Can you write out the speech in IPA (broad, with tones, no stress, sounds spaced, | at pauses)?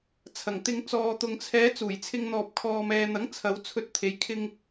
t͡sʰ ɐ˨˩ ŋ t̪ ɪ˧ ŋ t͡s ɔː˨ t̪ ʊ˨ ŋ t͡sʰ ɛː˨˧ t͡s uː˨˩ j t͡sʰ ɪ˧ ŋ n̪ ɔː˨ p̚ kʰ ɔː˨ m ɛː˨ n̪ ɐ˨˥ ŋ t͡sʰ ɐ˨˧ w t͡sʰ ɵ˧ t̚ t̪ʰ e˨˧ j kʰ ɪ˧ ŋ